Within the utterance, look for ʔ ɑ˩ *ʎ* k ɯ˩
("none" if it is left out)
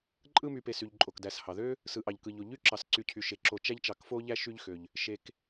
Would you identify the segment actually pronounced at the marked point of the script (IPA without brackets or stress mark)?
ʎ